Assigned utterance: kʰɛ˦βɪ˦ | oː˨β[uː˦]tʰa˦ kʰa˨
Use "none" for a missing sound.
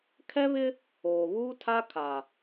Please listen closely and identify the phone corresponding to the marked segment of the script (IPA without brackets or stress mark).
uː˦